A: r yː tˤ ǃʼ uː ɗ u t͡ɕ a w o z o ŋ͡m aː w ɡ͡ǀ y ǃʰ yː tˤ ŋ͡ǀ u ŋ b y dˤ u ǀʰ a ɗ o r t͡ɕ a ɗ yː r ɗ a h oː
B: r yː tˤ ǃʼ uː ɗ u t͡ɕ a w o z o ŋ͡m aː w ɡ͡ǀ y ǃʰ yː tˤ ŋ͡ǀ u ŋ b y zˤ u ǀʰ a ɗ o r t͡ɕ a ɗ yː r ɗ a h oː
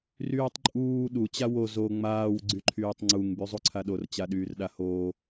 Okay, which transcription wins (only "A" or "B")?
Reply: B